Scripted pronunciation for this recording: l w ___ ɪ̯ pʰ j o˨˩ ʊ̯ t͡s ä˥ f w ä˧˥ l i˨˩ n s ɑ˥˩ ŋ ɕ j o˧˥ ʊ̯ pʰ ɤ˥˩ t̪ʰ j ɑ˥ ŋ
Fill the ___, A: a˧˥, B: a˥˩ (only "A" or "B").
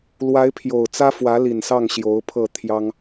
A